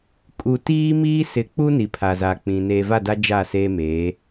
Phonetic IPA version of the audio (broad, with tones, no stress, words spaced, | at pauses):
kʼu˨ tiː˦miː˦sɪ˨˦k͡pu˦ ni˨pʰa˨za˨k͡pĩ˨ neː˨va˦˨da˦ d͡ʒa˦˨seː˦meː˨˦